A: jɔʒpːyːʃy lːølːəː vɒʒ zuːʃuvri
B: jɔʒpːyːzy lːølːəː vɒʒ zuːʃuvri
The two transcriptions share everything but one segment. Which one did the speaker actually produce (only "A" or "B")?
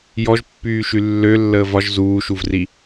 A